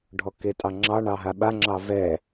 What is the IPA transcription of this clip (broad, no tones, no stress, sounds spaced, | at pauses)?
ɖʱ ɔ k e tʼ ɑ ŋ͡ǁ ɑ ɳ ɑ ɦ a ɓ a ŋ͡ǁ ɑ v ɛ